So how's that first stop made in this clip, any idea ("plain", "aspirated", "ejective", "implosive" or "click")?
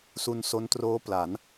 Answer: plain